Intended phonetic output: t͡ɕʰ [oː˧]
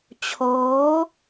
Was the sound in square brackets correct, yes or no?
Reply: no